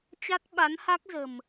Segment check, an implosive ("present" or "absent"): present